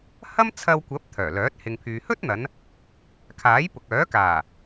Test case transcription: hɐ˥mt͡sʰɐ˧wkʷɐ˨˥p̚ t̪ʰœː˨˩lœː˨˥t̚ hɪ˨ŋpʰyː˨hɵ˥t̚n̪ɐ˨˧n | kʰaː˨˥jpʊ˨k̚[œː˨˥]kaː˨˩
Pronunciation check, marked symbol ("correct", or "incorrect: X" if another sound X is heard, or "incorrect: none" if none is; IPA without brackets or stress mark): correct